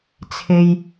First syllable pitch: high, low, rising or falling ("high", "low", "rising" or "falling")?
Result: high